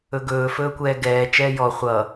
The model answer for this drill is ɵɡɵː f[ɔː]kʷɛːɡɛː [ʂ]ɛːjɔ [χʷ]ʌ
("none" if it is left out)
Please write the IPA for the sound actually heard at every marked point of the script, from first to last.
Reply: ɵː, t͡ʃ, χʷ

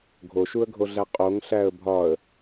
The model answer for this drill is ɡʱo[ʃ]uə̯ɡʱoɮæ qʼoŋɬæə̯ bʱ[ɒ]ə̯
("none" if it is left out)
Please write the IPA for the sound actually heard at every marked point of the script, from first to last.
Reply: ʃ, ɒ

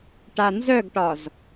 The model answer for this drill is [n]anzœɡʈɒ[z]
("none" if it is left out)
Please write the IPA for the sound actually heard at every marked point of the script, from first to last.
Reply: ʈ, z

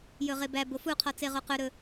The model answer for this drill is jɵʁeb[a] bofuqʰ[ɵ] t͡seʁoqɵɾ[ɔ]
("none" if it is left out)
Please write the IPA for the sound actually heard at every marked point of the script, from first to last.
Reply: æ, ɔ, ɵ

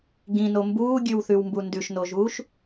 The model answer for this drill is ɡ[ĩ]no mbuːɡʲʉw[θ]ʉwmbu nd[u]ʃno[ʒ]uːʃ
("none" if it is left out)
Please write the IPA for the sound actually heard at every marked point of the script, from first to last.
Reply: ĩ, θ, ʉ, ʒ

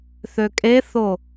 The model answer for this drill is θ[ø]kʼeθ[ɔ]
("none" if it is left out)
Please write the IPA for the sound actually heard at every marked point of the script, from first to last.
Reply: ø, o

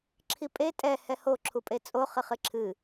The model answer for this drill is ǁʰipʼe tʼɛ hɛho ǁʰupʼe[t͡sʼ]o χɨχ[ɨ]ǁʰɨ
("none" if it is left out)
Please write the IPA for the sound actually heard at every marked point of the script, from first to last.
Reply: t͡sʼ, ɨ

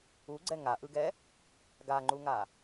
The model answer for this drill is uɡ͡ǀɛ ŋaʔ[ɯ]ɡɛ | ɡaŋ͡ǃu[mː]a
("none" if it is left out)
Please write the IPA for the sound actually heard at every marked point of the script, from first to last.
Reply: ɯ, ŋ

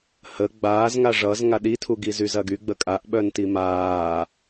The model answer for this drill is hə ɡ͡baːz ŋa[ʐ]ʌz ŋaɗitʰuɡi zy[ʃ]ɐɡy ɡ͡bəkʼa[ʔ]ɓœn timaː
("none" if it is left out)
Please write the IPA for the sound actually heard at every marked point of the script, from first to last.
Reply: ʐ, z, ʔ

